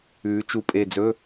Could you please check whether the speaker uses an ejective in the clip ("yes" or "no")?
yes